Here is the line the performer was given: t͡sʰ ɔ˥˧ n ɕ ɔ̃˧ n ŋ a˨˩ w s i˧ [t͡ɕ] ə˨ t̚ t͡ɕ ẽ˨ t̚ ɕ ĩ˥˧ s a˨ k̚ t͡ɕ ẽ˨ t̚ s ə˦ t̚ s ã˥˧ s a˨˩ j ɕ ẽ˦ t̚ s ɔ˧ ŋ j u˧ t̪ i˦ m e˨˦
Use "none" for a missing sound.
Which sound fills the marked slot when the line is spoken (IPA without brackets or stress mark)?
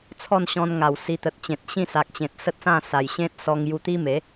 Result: t̪